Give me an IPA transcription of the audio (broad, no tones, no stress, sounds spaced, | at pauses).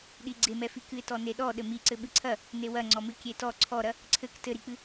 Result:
ɗ i ɡ͡ǀ e m ɛ f i k ɨ ɪ̯ t ɔ n e ɗ ɔ ɗ ɘ m i ǀ ɘ ɓ ɨ ǀʰ ɐ | n e w ɐ ŋ͡ǀ ɔ m ɨ kʲ e t ɔ ǀʰ ɔ ɾ ɐ | ǀʰ ɘ k t ɘ ɾ i k͡p ɨ